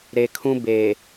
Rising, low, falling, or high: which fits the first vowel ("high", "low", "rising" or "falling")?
low